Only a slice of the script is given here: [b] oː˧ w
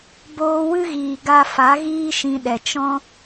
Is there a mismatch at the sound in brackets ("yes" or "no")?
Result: no